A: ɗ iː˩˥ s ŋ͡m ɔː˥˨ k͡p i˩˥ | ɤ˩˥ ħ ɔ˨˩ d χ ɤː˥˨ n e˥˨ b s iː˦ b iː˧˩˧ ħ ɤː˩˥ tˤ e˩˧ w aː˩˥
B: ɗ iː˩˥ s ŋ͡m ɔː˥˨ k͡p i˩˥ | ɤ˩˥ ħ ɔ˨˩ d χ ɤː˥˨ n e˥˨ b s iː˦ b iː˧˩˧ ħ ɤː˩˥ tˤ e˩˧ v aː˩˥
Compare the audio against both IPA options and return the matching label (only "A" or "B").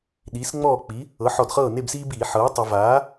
B